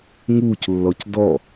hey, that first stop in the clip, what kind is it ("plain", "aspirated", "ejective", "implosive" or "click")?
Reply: plain